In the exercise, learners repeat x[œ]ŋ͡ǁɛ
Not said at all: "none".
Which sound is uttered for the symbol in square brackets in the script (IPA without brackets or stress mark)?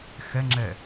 ɛ